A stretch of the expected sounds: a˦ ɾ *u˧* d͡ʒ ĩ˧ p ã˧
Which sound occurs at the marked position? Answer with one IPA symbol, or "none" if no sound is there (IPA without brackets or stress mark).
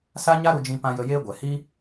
u˧